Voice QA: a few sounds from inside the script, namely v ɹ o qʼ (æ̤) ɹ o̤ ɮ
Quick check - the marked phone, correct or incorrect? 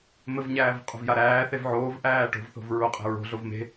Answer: correct